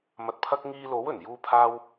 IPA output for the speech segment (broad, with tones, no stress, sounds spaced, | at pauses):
m ɐ˨ t̚ pʰ ɐ˧ k̚ ŋ iː˧ l o˨˥ w ɵ˨˩ n j uː˧ pʰ aː˧ w